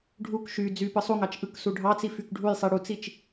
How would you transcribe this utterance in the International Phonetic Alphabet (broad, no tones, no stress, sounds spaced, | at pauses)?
ɖʱ u k ʃ y d͡z y p ɯ sˤ u ŋ ɑ t͡ʃ ʔ ɯ k s u ɖʱ ɑ t͡s i f y k ɖʱ u j sˤ i ɽ u t͡s i t͡ʃ